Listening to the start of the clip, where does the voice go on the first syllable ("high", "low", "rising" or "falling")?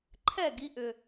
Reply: falling